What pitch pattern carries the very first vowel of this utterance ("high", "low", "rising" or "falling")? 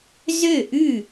falling